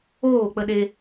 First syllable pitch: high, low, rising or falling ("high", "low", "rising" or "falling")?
falling